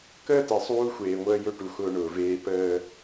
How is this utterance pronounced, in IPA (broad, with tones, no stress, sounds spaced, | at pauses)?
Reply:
k əː˦ t ɛ˨ sˤ uː˦ xʷ eː˨ ŋʷ əː˦ j ɵ˦ ʈ u˨ x ʊː˦ ɳ ʊː˨ v eː˦ p əː˦